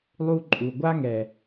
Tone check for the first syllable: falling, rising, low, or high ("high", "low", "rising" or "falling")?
high